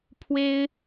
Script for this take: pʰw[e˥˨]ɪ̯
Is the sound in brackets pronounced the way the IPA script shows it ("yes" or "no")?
no